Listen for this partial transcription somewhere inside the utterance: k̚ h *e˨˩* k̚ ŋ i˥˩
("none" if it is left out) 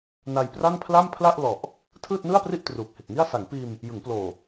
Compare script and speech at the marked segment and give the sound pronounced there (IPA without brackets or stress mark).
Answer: e˨˩